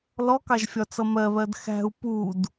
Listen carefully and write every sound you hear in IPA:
l ɔ k ɑ ʒ fʲ ɒ t͡s ʌ m ɜ β ɜ d x æ̤ u̯ p u d

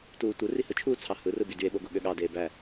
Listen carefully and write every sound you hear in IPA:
t uː tʷ ɯ r i h ɯ t͡ʃʰ uː t͡sʰ ɑ h ɯ r ɯ b y d y e̯ ɓ o ɡ o ɠ ø ɠ ɑ d eː b æ

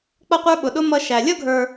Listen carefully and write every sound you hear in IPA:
k͡p ʌ˥ qʷ ə˞˥ ɓ ʊ˧ ɗ ʊ˥ m ʌ˥ ʃ æ˧ lʲ ʌ˥ ɡʱ ə˞˧

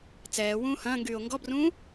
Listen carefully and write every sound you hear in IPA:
t͡s ɛː w ũː h ɐ̃ː ŋ ɡ yː o̯ ŋ ɡ ɔ b r ũː

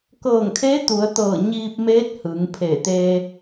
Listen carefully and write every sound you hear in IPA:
k ɤː˧˩ ŋ kʰ e˧˥ t̪ u˩˧ ə̯ t̪ ɤː˧˩ ɲ iː˧ p̚ m eː˧˥ t̚ h ɯː˩˧ ŋ pʰ e˧˩ t̪ e˧

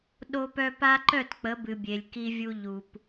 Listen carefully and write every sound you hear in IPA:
ɗ o˦ p œ˦ p a˦ ǃ œ˦˨ t k͡p ə˨˦ b ɨ˨ bʲ e˨ lʲ k i˦ vʲ u˦ ʎ u˨ p

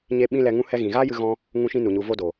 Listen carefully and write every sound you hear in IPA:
ɲ e˦ ɓ ĩ˦ l ɛ˧ ŋ ũ˦ h ɛ˧ ɣ ĩ˨ ɣ aː˦ j ɨ˦ ɣ ɔ̃˦ | ŋ ũ˦ ʃ ĩ˦ n u˨ ɲ u˧ v o˦ d o˨

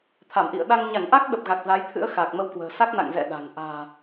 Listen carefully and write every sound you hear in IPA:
t̪ʰ a˧˩ m ʔ ḭ˧˨ ə̯ ɗ a˧ ŋ ɲ a˧˩ ŋ ʔ a˦˥ k̚ ɗ ə˨˩ p̚ ɣ a˨˩ k̚ z a˨˦ j t̪ʰ ɨ̰˧˥ ə̯ x aː˨˩ k̚ m ə˧ w k w ə̤ː˨˩ s a˦˥ k̚ n a̰˧˨ ŋ z ɛ̰˧˨ ɗ a̤˨˩ ŋ ʔ a̤ː˨˩

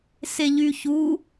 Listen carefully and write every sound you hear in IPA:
s e ʎ y ç u

